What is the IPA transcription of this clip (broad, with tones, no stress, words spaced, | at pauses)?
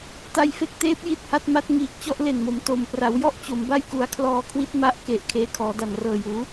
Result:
ta˧jfe˦˥k̚teː˦˥p̚ ji˥˩t̚ha˦˥t̚ma˦˥t̚ ŋiː˨˩k̚t͡ɕɔ˥˩ʔle˨˩nmo˩˦m to˨˩m pra˩˦wjɔ˥˩ʔ t͡ɕo˩˦mba˥˩j ku˩˦a̯kʰlɔː˧kʰwi˦˥t̚ ma˦˥ʔke˨˩ʔ kʰeː˧kʰɔː˩˦da˨˩n rɤː˨˩juː˩˦